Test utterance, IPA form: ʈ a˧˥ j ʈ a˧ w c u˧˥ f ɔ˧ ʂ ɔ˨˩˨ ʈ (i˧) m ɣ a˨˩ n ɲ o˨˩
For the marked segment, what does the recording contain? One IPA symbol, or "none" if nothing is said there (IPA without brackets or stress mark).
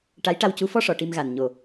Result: i˧